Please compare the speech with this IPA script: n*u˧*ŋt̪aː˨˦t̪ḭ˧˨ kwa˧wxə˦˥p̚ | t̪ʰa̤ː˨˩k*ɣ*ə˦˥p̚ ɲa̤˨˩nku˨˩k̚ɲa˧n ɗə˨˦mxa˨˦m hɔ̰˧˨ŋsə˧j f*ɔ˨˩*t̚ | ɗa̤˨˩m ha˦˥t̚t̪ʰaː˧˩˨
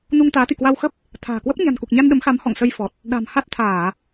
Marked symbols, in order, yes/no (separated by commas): yes, no, yes